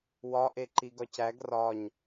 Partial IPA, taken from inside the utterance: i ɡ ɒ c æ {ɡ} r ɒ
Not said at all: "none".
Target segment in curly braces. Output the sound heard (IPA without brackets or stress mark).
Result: ɡ